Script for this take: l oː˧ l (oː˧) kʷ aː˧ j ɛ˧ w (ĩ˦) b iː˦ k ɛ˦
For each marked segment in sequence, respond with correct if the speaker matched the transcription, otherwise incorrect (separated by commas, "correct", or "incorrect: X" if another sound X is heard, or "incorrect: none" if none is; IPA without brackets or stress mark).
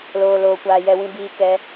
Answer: correct, correct